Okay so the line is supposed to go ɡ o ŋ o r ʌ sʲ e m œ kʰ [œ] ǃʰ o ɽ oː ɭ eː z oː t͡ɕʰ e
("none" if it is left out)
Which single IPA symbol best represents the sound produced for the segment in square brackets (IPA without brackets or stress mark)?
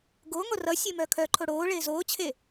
œ